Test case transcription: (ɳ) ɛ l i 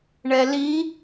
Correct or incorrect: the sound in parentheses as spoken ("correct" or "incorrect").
correct